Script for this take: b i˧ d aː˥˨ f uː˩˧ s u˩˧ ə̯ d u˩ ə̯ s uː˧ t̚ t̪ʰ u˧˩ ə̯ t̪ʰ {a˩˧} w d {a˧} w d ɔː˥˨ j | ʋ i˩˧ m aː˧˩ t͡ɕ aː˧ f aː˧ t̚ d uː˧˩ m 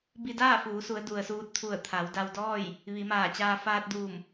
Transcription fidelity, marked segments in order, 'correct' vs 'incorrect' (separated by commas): correct, correct